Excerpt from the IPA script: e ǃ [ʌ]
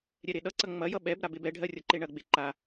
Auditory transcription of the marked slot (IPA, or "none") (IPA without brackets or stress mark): a